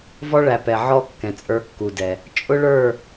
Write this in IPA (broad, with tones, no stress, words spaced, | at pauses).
vɔ˦ɭæ˨ pɛ˨ ʕɔ˦ kːɛ̃˨t͡sʼə˞˦kːu˨dɛ˨ | t͡ʃʼʊ˦ɭə˞˦˨